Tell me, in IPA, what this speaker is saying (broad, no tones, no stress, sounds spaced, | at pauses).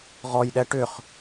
ʁ ɔ j ɗ ɛ ʈ ʏ χ